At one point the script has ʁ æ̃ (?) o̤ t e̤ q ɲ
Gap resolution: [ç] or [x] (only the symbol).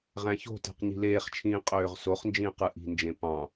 ç